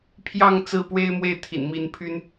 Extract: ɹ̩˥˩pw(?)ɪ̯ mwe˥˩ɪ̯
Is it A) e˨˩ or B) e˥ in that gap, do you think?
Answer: B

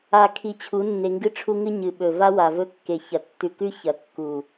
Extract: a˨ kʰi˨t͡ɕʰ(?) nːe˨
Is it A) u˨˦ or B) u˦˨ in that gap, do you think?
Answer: A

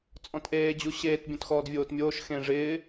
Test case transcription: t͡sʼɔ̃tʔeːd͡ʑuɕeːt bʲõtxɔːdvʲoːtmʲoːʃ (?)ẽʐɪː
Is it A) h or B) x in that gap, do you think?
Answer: B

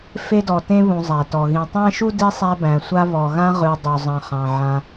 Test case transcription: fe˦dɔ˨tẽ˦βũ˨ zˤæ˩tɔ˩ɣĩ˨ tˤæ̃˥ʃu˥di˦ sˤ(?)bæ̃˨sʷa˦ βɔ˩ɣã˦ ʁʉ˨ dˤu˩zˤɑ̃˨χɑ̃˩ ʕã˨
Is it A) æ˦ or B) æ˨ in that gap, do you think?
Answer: A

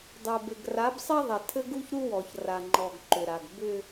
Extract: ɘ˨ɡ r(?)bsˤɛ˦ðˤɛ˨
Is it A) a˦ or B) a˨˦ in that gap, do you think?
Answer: B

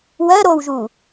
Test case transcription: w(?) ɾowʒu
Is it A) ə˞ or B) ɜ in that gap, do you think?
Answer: B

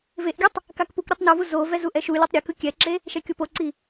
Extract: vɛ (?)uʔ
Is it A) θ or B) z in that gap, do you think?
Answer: B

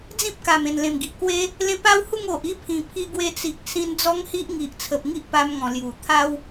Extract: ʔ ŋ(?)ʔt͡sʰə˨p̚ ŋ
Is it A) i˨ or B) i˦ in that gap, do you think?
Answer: A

